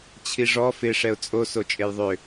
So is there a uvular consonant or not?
no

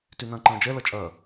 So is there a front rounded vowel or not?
yes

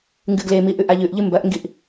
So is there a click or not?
no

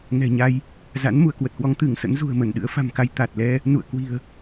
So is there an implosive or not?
yes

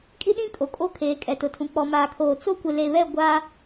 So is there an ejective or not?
yes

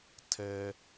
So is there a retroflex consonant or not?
no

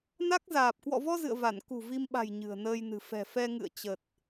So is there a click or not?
no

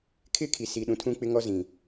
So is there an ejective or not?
no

